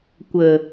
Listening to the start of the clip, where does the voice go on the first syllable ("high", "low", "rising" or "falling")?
low